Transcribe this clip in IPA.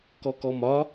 kɔkɔmɒ

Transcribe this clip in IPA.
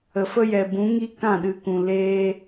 ə˨fə˦jɛ˨ bũ˨˦ŋi˦ kã˦˨ɗɨ˨kũ˨ leː˧

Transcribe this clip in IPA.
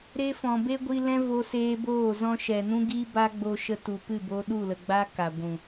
ɾe˧ fɔ̃˨be˦ɡʷi˧lɛ̃˦ vo˧seː˧boː˦˨ zɔ̃˧ʃɛ˨ nũ˦ɡiː˦ba˦ɡ͡bo˧ ʃə˧tu˨ pɨ˦˨bo˧ ɗu˦˨lə˨ɡ͡ba˦ ka˨ɡʷũ˨

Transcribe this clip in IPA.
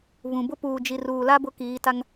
βũ˨bʊ˦ puː˨d͡ʒi˨ruː˨la˦ bʊ˦kiː˨˦ta˦ŋ

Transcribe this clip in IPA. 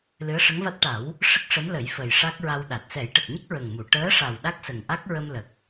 lɨ˧˥ə̯ʂə˧˥ŋva˦˥t̚ ʈa˨˩˦w | ʂə˦˥k̚ʂə˧˥mlə˨˩˦j fə˨˩jʂa˦˥k̚ɹa˧wɗa˨˩t̚ sɛ˨˩˦jʈə˨˩k̚ɲə˦˥k̚ ɹə˨˩ŋmu˨˩˨ ʈəː˧˥ʂa˨˩w ɗa˦˥k̚sə˨˩ŋʔa˦˥k̚ ɹə˧mlə˨˩k̚

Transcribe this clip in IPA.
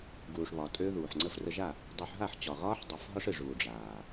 ɡuː˨ʂβɒ˨ tʼø˦ðuː˨ħ ŋ͡ǀə˧frə˧ʒa˦˨ | dˤu˧ħ ɦa˦˨ħt͡ɕɒ˨ɣɒː˦ħ dˤɨ˧f ɦɒ˦ʂɨ˨ʐuː˨ ɖ͡ʐaː˨

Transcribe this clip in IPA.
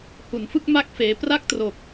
hu˩˦nfɯ˥˩k̚ ma˥˩k̚ feː˦˥ pra˥˩k̚tro˨˩k̚

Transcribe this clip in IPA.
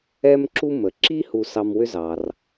ɛ˥mǁu˥ mə˩ǁi˥ hu˧sɑ˧mwʏ˥zɑ˩r

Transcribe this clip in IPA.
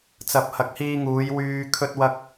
t͡sɐ˨p̚ hɐ˨˥k̚hiː˧ ŋuː˨˧jwyː˧ kʰɵ˥t̚wɐ˥k̚

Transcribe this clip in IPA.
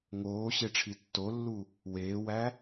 ŋoːɕeʈ͡ʂʰi tːolːu | weːwæ

